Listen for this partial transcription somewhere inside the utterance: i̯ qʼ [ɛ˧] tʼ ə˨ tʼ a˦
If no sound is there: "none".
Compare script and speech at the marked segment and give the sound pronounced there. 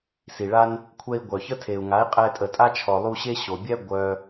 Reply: ɛ˧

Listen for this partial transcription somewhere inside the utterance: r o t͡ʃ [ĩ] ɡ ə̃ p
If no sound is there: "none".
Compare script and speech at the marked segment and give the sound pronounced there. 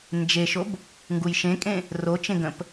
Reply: ẽ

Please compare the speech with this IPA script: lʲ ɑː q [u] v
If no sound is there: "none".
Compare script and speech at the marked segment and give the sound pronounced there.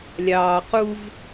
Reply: u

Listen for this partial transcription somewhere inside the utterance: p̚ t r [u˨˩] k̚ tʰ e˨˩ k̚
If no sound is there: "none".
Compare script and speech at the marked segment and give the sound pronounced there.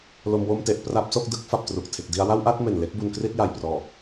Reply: u˨˩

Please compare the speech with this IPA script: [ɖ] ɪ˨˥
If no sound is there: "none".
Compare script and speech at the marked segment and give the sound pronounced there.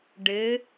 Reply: ɖ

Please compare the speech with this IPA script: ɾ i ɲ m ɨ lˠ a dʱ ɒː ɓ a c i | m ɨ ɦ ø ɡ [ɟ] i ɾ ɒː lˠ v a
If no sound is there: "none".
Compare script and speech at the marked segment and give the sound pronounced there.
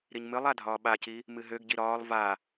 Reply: ɟ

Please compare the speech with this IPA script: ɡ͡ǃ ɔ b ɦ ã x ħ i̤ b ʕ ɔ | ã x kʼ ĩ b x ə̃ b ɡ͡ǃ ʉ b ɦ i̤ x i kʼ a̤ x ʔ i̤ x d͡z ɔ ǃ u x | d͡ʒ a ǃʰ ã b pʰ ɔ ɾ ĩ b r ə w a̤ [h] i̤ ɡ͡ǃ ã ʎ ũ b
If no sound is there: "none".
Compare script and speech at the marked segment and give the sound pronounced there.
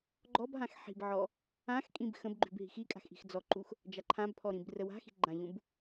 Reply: x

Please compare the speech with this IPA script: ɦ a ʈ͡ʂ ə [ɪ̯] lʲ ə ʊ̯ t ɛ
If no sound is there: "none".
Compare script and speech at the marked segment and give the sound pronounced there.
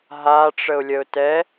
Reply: ʊ̯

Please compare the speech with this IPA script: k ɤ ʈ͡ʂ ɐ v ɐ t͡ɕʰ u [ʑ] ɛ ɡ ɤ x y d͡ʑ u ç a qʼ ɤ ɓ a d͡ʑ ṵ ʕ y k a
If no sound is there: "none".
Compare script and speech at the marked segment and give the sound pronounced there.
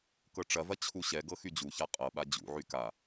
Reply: ɕ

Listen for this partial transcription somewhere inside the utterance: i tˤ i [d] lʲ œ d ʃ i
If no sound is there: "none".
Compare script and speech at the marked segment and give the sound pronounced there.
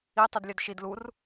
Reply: d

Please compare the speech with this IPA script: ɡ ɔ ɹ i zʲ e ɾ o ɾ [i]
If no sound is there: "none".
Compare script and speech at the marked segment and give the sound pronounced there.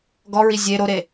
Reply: e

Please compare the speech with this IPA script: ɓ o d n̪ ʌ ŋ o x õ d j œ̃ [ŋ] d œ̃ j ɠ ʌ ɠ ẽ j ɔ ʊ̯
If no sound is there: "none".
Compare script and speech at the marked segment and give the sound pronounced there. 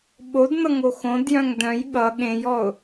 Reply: ŋ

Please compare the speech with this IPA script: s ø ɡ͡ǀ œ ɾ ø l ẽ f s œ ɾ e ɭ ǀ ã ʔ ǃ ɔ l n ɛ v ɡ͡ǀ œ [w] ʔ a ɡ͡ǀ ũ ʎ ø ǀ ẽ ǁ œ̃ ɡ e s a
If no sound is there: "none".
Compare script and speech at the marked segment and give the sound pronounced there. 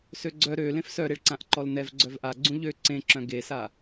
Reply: v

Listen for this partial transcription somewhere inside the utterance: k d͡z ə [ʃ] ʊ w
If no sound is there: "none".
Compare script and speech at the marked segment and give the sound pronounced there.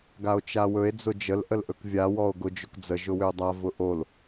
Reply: ʒ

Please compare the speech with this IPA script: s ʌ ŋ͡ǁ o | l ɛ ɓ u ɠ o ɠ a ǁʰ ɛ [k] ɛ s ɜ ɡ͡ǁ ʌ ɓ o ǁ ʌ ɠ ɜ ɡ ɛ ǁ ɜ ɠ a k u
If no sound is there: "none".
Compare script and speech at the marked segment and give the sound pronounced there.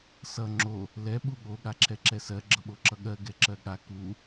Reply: ǁ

